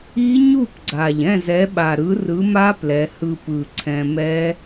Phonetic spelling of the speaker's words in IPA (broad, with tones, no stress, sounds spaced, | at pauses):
i˦˥ ɲ u˥˨ p ɡ͡ǀ a˨˩ ʎ ɛ̃˥˨ z ɛ˨˥ ɓ a˨˩ ɾ ɯ˨˥ r ɯ˨˥ m a˦˥ p l ɛ˩˧ h ɯ˧ p ɯ˨˩ ǀʰ ɛ̃˧ m ɛ˦˥